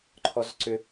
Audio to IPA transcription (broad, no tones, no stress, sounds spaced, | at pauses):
ǃʰ ɔ z ǀ ʏ